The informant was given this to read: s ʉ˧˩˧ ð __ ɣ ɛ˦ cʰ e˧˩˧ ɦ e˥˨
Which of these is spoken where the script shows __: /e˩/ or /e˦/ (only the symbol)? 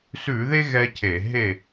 e˦